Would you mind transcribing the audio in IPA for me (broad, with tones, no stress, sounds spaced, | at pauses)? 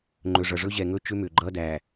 ŋ͡ǃ ɵ˨ ʐ ʌ˨ ʐ ɵ˦ ʑ ɛ˨ ŋ ɵ˦ t͡ʃ ʏ˦ m ʏ˨ ɡ͡ǃ ʌ˦ d æ˨